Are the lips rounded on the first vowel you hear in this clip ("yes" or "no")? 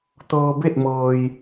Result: no